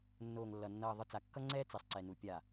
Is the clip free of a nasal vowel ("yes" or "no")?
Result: yes